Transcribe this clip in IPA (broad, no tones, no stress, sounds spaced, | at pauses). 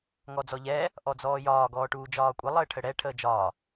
ŋ ɔ d͡z ɔ ʎ ɛː | ʔ ɔ d͡z ɔː j ɒː ɡ ɔː ʈ uː d͡ʒ ɒː kʷʼ ə lˠ əː ʈʰ ə ɽ ɛ ʈʰ əː d͡ʒ ɒː